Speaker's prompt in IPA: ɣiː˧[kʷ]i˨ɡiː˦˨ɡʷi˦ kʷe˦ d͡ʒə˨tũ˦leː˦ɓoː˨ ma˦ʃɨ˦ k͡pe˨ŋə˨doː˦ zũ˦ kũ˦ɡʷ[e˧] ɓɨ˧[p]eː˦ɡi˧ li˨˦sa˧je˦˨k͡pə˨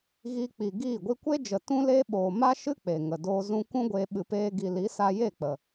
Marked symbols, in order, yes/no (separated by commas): no, yes, yes